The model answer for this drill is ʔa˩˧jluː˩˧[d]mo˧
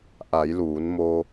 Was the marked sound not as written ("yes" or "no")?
yes